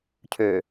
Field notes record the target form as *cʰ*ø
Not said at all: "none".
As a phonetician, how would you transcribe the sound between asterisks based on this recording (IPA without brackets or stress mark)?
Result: cʰ